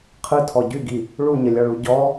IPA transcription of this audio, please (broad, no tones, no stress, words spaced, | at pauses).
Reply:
qʰɯtʰɔ ɟyɡi | ɭuɲəlʲɒɭu ɟɔ